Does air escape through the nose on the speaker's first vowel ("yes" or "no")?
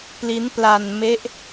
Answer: no